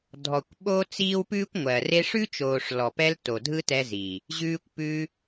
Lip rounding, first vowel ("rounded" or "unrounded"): rounded